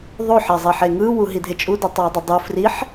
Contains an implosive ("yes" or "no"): no